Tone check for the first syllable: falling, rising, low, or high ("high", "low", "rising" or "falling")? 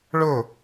falling